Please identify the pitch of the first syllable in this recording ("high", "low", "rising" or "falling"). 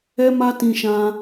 high